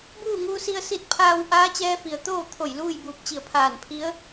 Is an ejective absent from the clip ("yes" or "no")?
yes